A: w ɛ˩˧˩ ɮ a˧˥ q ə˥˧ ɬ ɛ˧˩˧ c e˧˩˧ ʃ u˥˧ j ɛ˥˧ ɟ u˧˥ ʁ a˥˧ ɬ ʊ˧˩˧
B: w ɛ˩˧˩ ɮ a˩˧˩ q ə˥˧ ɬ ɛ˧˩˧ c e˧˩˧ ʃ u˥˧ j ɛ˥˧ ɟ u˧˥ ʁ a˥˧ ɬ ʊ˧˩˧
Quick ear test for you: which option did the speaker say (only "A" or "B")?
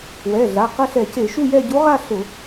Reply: B